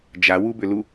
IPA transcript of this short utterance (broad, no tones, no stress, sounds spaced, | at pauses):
d͡ʒ a w u b ʏ l u